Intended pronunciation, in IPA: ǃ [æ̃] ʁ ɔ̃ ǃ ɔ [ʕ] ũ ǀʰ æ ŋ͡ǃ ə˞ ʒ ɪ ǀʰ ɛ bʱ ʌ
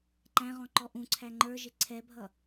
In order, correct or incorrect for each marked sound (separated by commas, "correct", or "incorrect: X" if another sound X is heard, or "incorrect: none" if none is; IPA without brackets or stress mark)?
correct, incorrect: ʔ